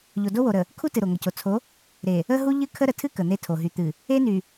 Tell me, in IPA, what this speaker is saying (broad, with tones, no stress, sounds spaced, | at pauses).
ʎ o˨ d o˦ w o˨ ɾ ə˨ | kʰ u˦ t ɨ˨ ɾ o˨ ŋ ə˨ c o˨ t͡sʰ o˨˦ | ɾ e˨ | ə˦ ɦ u˦ ʎ ɨ˦ kʰ ə˦ ɾ ə˨ tʰ ɨ˦ k ə˨ n̪ e˦ tʰ o˨ ɦ y˨ t̪ ɨ˨ | e˦ n y˨